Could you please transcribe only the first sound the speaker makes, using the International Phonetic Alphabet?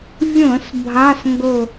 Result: vʲ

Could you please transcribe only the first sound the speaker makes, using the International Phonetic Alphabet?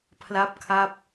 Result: pʰ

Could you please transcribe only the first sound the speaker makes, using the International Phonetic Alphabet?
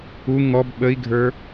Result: u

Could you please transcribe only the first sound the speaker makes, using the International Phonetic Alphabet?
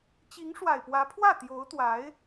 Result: t͡ɕ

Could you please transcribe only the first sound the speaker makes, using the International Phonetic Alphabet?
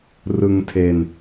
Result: r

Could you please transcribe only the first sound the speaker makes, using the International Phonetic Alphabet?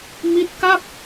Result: m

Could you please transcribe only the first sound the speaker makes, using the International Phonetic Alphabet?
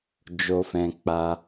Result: d͡ʒ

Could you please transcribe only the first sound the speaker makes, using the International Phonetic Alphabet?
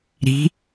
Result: ɾ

